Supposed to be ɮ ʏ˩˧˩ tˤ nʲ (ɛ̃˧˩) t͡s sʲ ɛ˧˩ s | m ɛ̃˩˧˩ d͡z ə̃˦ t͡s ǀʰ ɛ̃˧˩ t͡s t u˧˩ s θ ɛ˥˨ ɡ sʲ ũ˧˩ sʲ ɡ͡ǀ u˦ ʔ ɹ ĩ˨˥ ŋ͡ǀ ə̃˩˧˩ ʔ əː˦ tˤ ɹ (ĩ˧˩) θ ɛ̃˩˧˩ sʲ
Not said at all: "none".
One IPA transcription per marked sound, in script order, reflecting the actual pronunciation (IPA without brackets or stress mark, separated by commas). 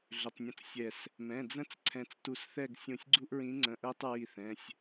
ə̃˧˩, i˧˩